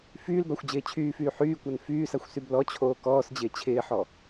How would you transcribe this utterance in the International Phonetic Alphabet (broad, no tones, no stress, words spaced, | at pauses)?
fyːlbaxʷd͡ʑɪː t͡ɕʰyːfyː ħyːkʷan fyːsaxʷsyb lɔt͡ɕʰoː kɔːsd͡ʑɪː t͡ɕʰɪːħɔ